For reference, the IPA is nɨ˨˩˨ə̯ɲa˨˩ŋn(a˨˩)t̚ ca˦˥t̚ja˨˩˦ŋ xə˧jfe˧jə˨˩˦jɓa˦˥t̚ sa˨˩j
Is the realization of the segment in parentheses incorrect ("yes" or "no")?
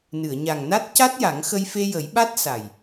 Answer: yes